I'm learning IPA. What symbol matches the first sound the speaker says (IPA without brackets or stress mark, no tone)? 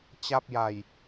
t͡ɕ